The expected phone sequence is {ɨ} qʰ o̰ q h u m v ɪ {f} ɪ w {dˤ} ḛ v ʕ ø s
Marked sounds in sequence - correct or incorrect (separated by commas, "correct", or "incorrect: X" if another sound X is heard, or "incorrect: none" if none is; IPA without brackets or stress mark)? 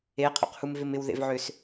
incorrect: e, incorrect: m, incorrect: ð